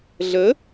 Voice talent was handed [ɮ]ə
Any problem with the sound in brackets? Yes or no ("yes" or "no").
no